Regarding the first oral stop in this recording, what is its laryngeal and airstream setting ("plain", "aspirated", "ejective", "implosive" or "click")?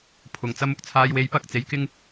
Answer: aspirated